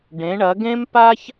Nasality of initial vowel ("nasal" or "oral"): nasal